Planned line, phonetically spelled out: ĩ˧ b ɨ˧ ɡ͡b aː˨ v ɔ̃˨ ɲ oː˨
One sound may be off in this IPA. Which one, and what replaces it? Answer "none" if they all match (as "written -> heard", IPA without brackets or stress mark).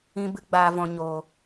none